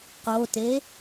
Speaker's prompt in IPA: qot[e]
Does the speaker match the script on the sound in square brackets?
yes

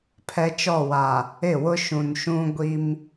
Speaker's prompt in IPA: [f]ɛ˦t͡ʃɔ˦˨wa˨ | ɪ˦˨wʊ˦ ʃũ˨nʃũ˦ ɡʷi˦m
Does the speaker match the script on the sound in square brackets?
no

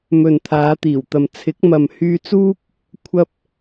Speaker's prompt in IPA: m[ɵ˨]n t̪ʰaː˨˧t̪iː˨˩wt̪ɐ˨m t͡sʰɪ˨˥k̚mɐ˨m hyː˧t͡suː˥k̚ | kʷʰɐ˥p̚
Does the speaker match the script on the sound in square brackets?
yes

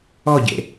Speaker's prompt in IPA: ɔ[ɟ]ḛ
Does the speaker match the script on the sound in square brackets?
yes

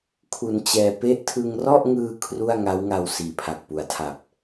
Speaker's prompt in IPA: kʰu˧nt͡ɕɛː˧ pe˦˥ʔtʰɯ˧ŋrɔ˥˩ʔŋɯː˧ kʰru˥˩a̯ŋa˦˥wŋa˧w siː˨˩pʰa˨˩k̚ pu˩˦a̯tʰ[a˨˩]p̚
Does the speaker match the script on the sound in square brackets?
yes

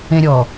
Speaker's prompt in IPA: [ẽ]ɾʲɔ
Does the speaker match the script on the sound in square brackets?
yes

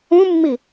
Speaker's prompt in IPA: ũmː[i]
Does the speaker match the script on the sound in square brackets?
yes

